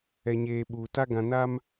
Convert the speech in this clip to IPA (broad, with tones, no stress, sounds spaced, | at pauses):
ɛ˨ ɲ eː˨ ɓ uː˨ t a˦ ɡ ã˨ n a˦ m